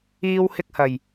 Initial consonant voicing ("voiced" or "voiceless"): voiced